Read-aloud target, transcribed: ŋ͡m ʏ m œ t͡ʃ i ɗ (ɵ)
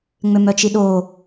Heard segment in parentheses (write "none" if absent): o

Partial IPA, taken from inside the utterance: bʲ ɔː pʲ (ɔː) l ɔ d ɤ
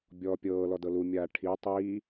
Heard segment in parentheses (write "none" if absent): ɤː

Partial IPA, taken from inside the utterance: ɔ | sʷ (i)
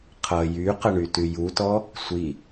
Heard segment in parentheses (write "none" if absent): i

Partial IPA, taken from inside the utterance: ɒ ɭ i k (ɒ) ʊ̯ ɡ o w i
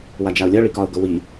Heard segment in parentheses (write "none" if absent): ɒ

